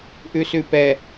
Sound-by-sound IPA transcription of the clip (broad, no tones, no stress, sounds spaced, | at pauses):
ʔ ʉ s ʉ p ɛ